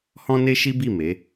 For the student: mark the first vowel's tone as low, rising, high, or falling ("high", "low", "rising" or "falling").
high